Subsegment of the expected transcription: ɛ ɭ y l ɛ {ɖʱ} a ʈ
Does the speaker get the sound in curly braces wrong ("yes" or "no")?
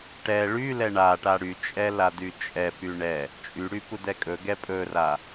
yes